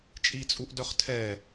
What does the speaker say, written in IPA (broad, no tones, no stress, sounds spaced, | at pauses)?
t͡ʃʼ i t͡sʼ u ʔ d œ χ tʰ ɛ